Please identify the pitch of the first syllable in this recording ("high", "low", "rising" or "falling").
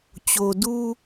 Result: low